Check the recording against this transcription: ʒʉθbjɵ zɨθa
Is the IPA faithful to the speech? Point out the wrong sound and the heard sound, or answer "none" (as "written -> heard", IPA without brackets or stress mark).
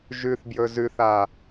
ɨ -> ʉ